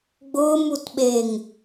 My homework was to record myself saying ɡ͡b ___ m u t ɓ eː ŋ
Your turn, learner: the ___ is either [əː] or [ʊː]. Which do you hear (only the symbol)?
ʊː